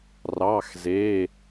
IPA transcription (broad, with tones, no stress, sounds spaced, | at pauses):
r ɑ˧˥˧ x z e˧˥˧